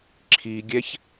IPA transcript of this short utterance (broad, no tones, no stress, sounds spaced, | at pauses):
ǁʰ i ɡʲ ɛ ç